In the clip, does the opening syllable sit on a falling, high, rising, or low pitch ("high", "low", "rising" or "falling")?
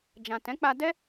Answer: low